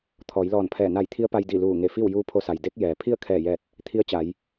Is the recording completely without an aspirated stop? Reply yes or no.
no